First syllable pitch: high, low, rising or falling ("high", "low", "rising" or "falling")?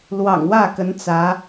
low